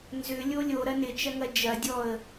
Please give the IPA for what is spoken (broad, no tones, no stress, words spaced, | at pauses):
nzʏlʲo lʲoɾɐ nɪt͡ʃɐŋɐ d͡ʒɐdʲɔə̯